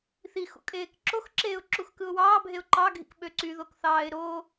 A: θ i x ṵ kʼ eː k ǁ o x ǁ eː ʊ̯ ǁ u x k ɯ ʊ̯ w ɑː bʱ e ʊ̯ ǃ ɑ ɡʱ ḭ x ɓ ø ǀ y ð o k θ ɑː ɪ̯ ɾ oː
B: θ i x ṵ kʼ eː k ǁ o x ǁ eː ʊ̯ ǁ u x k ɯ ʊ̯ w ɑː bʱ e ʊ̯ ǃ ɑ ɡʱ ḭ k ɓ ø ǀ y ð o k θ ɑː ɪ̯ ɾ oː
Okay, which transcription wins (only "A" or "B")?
B